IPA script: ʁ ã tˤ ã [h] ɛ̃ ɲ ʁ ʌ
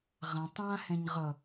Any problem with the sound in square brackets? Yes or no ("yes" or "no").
no